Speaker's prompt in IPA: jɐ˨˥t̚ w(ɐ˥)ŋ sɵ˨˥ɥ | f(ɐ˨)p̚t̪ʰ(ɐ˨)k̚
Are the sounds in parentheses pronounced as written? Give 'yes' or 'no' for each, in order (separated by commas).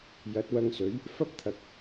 no, no, yes